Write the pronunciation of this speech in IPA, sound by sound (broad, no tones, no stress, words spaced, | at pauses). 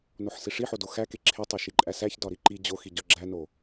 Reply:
noħsiʂiħo doxæke ǁʰe tˤoʃiǃʼæsæç dɒɾiǃi d͡ʑoxi ɟɒɡ͡ǁæno